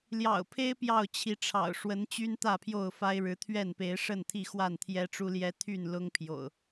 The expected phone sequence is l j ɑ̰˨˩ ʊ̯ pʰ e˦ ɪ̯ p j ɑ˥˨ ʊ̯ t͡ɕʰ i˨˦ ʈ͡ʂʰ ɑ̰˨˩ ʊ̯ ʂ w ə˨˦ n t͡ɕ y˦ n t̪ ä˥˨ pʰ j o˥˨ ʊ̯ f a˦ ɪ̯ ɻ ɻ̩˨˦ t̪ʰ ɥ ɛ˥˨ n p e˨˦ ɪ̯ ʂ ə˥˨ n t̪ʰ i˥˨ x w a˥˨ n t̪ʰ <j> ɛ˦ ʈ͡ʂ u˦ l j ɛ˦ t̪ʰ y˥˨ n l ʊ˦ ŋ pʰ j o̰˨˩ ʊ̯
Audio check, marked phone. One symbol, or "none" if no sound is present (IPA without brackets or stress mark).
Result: j